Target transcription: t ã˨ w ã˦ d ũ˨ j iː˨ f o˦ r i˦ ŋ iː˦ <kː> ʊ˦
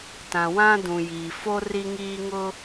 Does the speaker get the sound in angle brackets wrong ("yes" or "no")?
yes